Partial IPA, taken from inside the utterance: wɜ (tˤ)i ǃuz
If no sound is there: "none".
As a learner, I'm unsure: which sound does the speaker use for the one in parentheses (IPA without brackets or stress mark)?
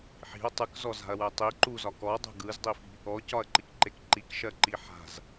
tˤ